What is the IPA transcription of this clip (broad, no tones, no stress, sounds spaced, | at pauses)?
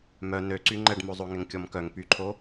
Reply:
m œ n ø ǀ y ŋ͡ǃ ɛ ɖ m o zˤ o ŋ ɛ ŋ kʲ ɔ m k œ ŋ p y ǃʰ o